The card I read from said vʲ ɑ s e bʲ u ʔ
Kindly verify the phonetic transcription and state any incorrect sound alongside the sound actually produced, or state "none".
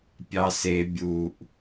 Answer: vʲ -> pʲ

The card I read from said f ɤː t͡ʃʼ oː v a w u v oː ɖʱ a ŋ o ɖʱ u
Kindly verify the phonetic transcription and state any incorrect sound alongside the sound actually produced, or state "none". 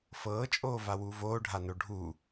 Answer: ŋ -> n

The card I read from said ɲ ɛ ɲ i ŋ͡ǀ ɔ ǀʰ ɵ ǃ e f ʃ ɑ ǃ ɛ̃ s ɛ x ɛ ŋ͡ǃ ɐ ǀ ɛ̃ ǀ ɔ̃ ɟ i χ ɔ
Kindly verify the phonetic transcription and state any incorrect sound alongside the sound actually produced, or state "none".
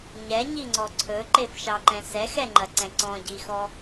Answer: χ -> x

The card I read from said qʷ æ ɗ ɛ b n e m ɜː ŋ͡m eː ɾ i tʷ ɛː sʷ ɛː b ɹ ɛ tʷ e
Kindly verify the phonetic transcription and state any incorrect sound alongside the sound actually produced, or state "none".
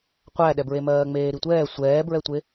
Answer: n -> ɹ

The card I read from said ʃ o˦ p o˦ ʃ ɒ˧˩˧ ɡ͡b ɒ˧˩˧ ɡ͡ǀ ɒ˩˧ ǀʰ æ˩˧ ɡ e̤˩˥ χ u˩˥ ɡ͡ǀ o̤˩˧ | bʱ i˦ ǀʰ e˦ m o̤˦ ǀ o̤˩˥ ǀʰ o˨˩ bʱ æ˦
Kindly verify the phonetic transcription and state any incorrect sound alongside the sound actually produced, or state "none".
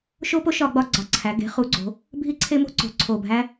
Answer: none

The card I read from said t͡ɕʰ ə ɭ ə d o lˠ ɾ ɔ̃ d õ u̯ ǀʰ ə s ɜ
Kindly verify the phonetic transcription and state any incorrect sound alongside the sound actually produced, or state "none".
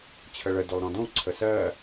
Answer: none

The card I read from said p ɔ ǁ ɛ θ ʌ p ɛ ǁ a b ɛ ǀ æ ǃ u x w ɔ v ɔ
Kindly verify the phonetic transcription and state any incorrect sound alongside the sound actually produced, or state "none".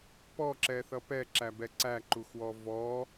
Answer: a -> æ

